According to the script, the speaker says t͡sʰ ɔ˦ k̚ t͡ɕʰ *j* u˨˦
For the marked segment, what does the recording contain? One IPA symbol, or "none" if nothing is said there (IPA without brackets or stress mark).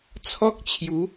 j